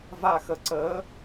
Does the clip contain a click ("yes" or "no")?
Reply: yes